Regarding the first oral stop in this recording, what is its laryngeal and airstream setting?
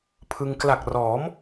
aspirated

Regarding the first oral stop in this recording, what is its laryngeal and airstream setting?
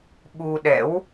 implosive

